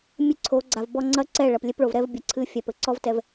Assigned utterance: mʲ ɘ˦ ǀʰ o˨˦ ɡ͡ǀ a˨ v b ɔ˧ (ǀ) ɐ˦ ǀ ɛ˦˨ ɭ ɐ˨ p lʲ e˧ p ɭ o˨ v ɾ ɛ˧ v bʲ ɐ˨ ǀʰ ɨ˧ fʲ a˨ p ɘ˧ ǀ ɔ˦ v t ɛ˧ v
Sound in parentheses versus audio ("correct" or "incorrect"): incorrect